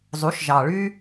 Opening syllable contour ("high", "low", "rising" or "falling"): rising